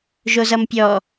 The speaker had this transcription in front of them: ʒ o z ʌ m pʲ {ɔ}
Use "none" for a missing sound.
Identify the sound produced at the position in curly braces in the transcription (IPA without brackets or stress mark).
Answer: ɔ